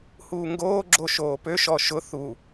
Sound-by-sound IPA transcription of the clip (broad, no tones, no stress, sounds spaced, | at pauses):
h uː ŋ ɡ oː ɡ͡ǁ o ʃ oː p ø ʃ ɔ ʃ ʊ θ u